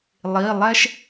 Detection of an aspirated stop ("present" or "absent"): absent